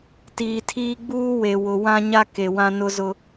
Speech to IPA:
t iː˨ tʰ iː˦ ɡ͡b uː˦ w e˨ w ʊ˨ w ã˦ ɲ a˦ k e˨ w ã˦ n ʊ˦ z ʊ˦

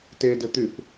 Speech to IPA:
t e d ɘ t̪ y θ

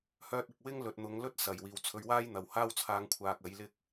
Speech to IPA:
h œː˧ t̚ ɪ˨ k̚ w ɪ˥ ŋ l ɵ˨ t̚ n̪ ʊ˨˧ ŋ l ɵ˥ t̚ s ɐ˨˩ j w iː˨ w t͡sʰ ɵ˧ ɥ w aː˥ j n̪ ɐ˨ w h aː˥ w t͡sʰ aː˧ ŋ kʷʰ aː˧ k̚ ɐ˨˥ j l ɪ˧ k̚

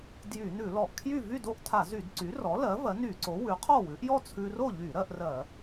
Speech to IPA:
d j y˧˩˧ n ʉ˧˩˧ l ɔ˧˩˧ ʔ kʰ j y˥˨ v y˥˨ d o˥˨ ʔ tʰ a˧˩˧ z y˧˩˧ d ǀ y˩˥ r ɔ˩˥ l ɜ˩˥ v ɜ˩˥ n y˧˩˧ ǀ o˩˥ w ʉ˩˥ qʰ ɔ˥˨ w ʉ˩˥ ʔ j ɔ˥˨ t͡sʰ ʉ˧ r o˥˨ ʎ y˧˩˧ ɾ ɜ˧ ʔ r ɜ˧˩˧

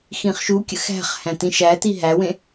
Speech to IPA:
x ĩ χ ʃ u kʲ ə̰ x æ̤ χ h æ̃ t ĩ ʃ æ t i ɦ æ w ẽ

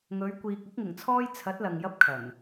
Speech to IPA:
ŋ ɵ˨˧ ɥ kʷ iː˨ k̚ ʊ˨˥ k̚ ŋ ɪ˨˩ ŋ t͡sʰ ɔː˧ j t͡sʰ ɐ˨˥ t̚ l ɐ˨ ŋ j ɐ˧ p̚ kʰ ɐ˨˩ n

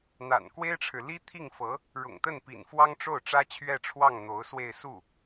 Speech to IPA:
n̪ a̰˨˩ n k w e˥ ɪ̯ ʈ͡ʂʰ ɻ̩˨ l i˥ t̪ʰ i˥˩ ŋ f ɤ˧˥ | ɻ ʊ̰˨˩ ŋ t̪ ə˥˩ n p ḭ˨˩ n f w ɑ˥ ŋ ʈ͡ʂ o˥˩ ʊ̯ ʈ͡ʂ ä˥ t͡ɕʰ ɥ ɛ˥˧ ʈ͡ʂʰ w ɑ˥˩ ŋ n̪ o˧˥ ʊ̯ s w e˥˧ ɪ̯ s u˥˩

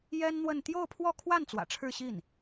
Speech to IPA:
j ɛ˥ n n̪ w ə˥˧ n t̪ j o˥˧ ʊ̯ pʰ w ɔ˥˧ kʰ w a˥˩ n t͡s w ä̰˨˩ ʈ͡ʂʰ ɻ̩˥˧ ɕ i˥˩ n

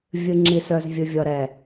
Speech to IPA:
vʲ ɨ˨ ŋ͡ǁ i˨ s œ˨ z vʲ ɨ˨ vʲ ʌ˨ ɾ ɛ˨

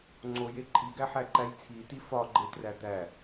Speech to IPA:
ŋ͡ǀ o j e ǃʼ i ɡ æ ħ æ ǃ æ j t͡sʰ i t i f ɒ ɡ͡ǃ e t r æ d̪ æ

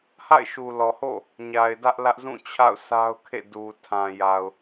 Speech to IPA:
h a̰˦˨ ɪ̯ ʃ u˨ l ɔ˨ h o̰˦˨ | ɲ a˨ ɪ̯ d ä˦ ʔ l ä˦ ʔ z ũ˦˨ t͡ɕʰ a̰˦˨ ʊ̯ s a˦ ʊ̯ kʰ ḛ˦˨ d u˨ tʰ ã˨ j a˨ ʊ̯

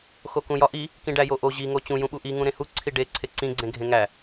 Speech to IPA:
x o k ũ j ɒ ʔ i | k ĩ ɖ æ j o ʔ o ʑ i ŋ o t͡ɕ ũ j ũ ɓ u ʔ i ŋ ũ ɾ ẽ h u ǀʰ i ɖ e ǀʰ e ǀ ĩ ɡ͡ǀ ẽ ɡʱ ẽ ŋ æ

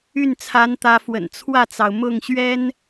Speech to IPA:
y˥˩ n t͡sʰ a˧˥ n t̪ ä˧˥ f w ə̰˨˩ n t͡sʰ w ä˥˩ t͡s ɑ˩ ʊ̯ m ʊ˥˩ ŋ ɕ ɥ ɛ˥ n

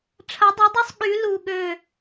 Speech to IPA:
ʈ͡ʂʰ ɐ˨˥ dˤ u˨˥ dˤ u˦ sˤ ɠ y˨˥ l u˦˨ ɠ ø˦˨

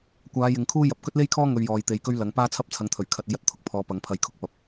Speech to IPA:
kʷ aː˨˧ j ɪ˨ ŋ kʰ uː˥ j ɐ˨ p̚ k ɵ˥ t̚ l e˥ j kʰ ɔː˥ ŋ ɵ˧ ɥ j ɔː˨ j t̪ e˨˧ j k ɵ˥ ɥ l ɐ˨˥ ŋ p aː˥ t͡sʰ ɐ˥ p̚ t͡sʰ ɐ˨˧ ŋ t̪ʰ ɵ˨˩ ɥ kʰ ɐ˨ t̚ e˧ j ɐ˨ t̚ t̪ʰ ʊ˨˥ k̚ pʰ ɔː˨˧ p ɐ˨˥ ŋ pʰ ɐ˧ j kʰ ʊ˥ k̚ p ɐ˨ p̚

